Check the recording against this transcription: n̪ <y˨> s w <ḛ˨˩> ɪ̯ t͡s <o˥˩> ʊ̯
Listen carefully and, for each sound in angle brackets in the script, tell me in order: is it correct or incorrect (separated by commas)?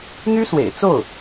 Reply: incorrect, correct, correct